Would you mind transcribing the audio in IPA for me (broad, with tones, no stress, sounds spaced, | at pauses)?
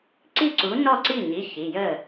ǀ i˥˩ ǀ u˨˥ n ɔ˥˩ ǀ i˥˩ ɲ i˩˧˩ ç i˩˧˩ j ə˥˩